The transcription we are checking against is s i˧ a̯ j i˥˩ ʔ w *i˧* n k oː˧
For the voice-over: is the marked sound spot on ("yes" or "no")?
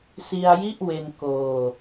no